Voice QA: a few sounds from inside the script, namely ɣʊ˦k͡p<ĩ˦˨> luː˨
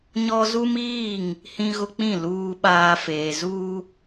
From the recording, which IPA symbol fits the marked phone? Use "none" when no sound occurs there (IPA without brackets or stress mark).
ĩ˦˨